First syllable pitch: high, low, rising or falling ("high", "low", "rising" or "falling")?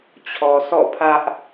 low